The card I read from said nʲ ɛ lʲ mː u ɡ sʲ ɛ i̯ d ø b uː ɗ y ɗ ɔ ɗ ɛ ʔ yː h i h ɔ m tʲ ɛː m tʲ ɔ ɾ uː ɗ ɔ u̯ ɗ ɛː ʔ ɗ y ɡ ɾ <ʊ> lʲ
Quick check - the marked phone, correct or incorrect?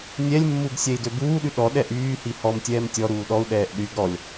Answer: incorrect